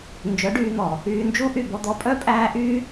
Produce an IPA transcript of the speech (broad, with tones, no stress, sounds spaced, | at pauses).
n d͡ʒ œ˨˦ ɖ yː˧ n̪ ɔ˨ | yː˧ n d͡ʒ u˦ ʔ y˦˨ b ɔ˧ d̪ ɔ˧ pʼ œ˦ pʼ æː˦ ʔ yː˦